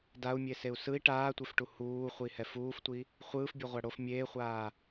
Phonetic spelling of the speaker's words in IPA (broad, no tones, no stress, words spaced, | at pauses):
dau̯mʲeseu̯ sɯi̯ ʈaːtʷefʈu huːχʷihɛ fuːftʷi | χʷɯːfbʲɛʁʷa ɽof mʲeːχʷaː